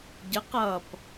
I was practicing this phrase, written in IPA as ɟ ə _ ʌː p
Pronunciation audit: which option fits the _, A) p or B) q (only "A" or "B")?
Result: B